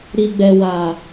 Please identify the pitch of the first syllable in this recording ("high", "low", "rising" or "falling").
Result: low